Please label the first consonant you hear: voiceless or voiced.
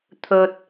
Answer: voiceless